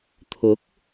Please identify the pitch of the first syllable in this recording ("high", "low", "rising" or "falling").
rising